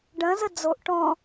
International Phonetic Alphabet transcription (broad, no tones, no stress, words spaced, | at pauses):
ɖɐ̃zə d͡zoʔ ʈɔ̃